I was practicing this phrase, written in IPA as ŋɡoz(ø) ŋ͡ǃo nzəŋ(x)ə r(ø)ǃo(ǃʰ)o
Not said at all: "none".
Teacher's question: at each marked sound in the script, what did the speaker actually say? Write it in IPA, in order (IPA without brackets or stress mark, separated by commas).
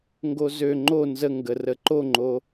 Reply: ø, ɡ, ə, ŋ͡ǃ